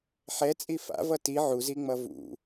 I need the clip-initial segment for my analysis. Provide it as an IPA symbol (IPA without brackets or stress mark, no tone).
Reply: ħ